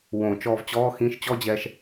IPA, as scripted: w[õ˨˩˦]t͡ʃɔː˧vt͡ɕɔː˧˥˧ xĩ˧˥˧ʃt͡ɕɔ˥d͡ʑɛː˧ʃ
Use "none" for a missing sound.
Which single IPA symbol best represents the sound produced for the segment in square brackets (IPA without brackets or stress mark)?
õ˨˩˦